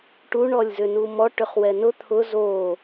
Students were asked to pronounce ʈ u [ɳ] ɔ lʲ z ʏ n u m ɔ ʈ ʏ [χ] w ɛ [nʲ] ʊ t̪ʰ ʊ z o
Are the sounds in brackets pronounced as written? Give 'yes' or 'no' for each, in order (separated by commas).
yes, yes, no